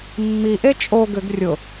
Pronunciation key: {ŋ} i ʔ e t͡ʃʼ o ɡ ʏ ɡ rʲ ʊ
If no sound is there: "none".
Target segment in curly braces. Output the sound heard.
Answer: mː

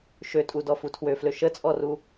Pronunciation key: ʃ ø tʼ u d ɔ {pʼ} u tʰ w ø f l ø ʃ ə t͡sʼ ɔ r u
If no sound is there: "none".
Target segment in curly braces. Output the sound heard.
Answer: f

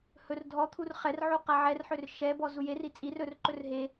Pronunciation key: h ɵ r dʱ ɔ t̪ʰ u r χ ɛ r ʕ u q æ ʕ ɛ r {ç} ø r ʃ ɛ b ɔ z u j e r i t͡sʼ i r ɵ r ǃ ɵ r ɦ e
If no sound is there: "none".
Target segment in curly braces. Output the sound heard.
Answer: ħ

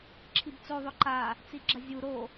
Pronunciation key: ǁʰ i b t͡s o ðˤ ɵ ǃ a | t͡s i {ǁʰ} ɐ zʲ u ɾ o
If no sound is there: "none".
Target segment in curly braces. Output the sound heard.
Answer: ɡ͡ǁ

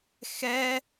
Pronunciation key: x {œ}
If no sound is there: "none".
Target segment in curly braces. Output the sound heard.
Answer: ɛ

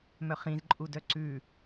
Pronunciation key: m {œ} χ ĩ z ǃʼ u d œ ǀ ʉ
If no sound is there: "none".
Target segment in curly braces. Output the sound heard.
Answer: œ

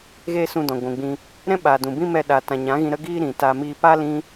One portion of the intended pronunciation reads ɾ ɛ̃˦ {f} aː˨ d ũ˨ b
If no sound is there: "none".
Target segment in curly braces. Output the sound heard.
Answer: ɓ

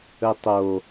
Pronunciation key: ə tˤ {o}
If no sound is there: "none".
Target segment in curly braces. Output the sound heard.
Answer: o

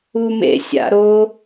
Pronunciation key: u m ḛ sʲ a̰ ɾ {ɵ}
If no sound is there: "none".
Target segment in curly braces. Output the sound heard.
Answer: o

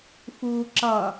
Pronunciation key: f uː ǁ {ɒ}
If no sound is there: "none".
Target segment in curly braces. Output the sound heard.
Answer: ʌ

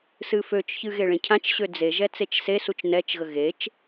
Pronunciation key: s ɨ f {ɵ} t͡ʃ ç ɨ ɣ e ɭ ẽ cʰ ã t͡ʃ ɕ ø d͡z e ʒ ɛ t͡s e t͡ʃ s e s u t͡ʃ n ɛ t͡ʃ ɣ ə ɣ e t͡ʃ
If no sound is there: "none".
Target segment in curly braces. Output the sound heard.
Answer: ø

